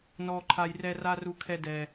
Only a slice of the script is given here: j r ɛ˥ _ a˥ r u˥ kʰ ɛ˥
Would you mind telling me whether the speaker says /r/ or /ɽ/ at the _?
r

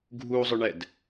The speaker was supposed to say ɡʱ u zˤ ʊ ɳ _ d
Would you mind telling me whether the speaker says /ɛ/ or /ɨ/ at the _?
ɛ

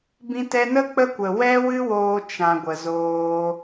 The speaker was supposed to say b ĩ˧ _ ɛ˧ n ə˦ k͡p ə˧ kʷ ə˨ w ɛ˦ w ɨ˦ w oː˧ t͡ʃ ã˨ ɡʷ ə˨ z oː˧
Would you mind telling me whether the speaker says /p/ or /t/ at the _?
t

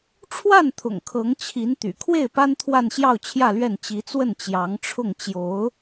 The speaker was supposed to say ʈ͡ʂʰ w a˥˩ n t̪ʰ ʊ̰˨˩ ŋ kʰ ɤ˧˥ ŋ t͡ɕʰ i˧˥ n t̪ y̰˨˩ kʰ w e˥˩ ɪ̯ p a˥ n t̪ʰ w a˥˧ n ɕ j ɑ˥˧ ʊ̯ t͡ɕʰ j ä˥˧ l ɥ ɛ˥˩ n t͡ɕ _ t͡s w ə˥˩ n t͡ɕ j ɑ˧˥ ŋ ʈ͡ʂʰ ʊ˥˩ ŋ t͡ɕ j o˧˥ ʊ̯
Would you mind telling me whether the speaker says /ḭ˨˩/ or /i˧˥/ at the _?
i˧˥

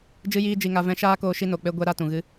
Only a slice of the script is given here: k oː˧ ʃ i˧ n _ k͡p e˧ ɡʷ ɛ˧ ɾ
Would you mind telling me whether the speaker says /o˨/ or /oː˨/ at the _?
o˨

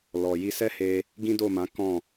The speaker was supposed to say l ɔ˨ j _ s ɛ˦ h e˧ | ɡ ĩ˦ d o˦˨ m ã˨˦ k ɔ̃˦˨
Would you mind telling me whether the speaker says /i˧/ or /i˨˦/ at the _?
i˧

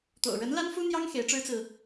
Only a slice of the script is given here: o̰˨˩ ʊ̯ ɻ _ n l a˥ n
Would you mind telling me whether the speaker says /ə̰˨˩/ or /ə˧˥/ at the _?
ə˧˥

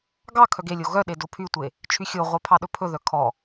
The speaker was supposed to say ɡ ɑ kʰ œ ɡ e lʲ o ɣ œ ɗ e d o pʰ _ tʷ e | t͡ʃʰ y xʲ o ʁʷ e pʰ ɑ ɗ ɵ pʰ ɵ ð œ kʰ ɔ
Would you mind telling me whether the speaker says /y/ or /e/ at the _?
y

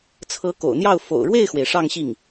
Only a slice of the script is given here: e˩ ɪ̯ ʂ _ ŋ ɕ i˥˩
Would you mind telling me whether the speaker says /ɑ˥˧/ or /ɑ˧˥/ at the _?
ɑ˥˧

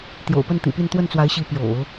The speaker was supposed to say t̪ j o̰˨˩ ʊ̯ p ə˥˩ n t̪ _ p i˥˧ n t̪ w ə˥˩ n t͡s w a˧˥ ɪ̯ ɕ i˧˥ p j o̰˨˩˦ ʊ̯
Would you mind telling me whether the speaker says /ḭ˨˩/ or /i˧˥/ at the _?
ḭ˨˩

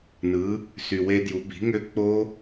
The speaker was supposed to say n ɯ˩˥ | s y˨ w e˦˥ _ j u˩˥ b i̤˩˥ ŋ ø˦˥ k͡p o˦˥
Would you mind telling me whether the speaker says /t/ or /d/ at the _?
d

